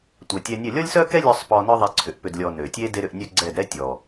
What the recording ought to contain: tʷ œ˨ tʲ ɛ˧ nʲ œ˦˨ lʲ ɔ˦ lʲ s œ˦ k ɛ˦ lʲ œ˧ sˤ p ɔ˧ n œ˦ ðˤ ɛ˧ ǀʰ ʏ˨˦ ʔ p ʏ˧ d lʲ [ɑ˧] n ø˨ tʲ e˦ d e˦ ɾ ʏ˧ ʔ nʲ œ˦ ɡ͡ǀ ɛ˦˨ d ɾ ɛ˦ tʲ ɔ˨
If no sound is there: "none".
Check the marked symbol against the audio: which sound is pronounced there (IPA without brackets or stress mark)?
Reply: ɔ˧